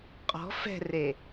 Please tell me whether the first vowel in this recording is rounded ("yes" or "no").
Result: yes